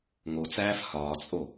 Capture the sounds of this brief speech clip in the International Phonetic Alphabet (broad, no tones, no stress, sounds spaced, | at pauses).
ŋ o t͡s æː f h ɒː t͡sʼ o